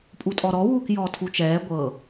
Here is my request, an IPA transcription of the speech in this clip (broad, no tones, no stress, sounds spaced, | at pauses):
pʼ u tʼ ɔ ɾ ɔ w uː k j ɔː tʰ u t͡ʃ ɛː ɡʷ ɤ